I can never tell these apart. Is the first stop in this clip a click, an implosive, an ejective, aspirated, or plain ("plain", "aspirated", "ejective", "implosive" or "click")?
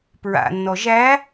plain